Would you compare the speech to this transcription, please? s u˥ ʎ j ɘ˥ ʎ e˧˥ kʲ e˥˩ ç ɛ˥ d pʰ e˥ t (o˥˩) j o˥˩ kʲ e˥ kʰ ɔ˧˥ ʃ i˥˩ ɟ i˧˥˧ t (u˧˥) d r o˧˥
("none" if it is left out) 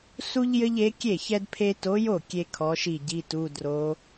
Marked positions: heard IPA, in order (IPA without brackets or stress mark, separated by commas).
o˧˥, u˧˥˧